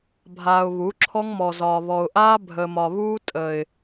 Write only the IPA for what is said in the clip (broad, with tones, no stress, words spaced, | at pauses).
bʱaː˨ʊ̯βu˨˦ ǁʰɔ˦ŋmɔ˨ zɒː˨βɔ˨ʊ̯ʔaː˦ bʱəː˨mɒ˨ βuː˦ tʼə˨ɪ̯